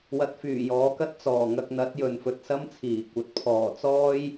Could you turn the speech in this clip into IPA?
w ɐ˧ t̚ f yː˨˩ j ɔː˨˥ k ɐ˥ t̚ t͡s ɔː˨˩ ŋ ɐ˧ k̚ n̪ ɐ˨˥ t̚ j ɵ˨ n f ɵ˨ t̚ s ɐ˥ m t͡sʰ iː˨˩ kʷ ɐ˨ t̚ pʰ ɔː˨˩ t͡s ɔː˥ j

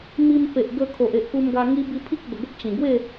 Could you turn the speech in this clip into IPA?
m i˧ m p e˨ ʔ ɡ ə˧ kʰ o˨ ʔ e˨ ʔ k u˧ m ɡ a˧ ŋ i˦ b i˧ pʰ i˦ k̚ b ə˨˩ ɡ ə˦ p̚ t͡ɕ ĩ˨˩ ɡ w e˥˧

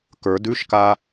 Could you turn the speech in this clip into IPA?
k ə˞ d ʉ ʃ k a

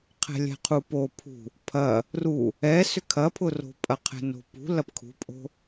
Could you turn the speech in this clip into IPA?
qʰ ɛ̤ lʲ ɛ̤ qʰ u p o pʰ ṳ | pʰ ɐ | r u | ɛ s ʏ kʰ ɐ pʰ ʊ r o̤ pʼ ɐ qʰ ɛ̤ n o̤ p ṳ l ɐ p kʰ ṳ pʼ o̤

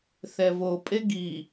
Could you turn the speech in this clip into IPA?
θ ɛ v o pʼ e ɡ i

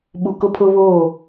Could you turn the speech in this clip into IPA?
ɓ u˨ k ʊ˦ pʰ ʊ˦ β oː˦˨

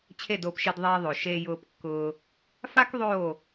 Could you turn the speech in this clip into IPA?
t͡ɕʰ e˦˨ d oː˧ p ʃ i˧ d ðˤ eː˧ ðˤ o˨ ʃ e˧ j ʊː˧ p kː ʊː˧ | f a˦ k ðˤ oː˦˨

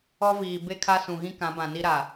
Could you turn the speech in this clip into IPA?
ɔ˦ v iː˨ b e˦ kʰ a˦ s ũ˨ ɣ ĩ˦ k ã˨˦ b ã˨ n i˦ ɾ a˨

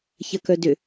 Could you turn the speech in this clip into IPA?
ç ɐ k œ d ʏ

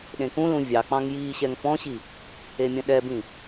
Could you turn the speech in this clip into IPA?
ɗ ẽ k ũ l ũ vʲ ɑ k͡p ɑ̃ ŋ j iː ɕ ɛ ŋ f ɔ̃ ɕ i | e mʲ ɐ̃ ɗ ɛ b ĩ

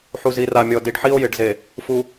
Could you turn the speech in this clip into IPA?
ħ u˨ z i˨ r a˨ mʲ ɔ˨ d i˨ ɖ ħ i˦ o̯ j ɪ˨ ɖ z e˨ | f u˨

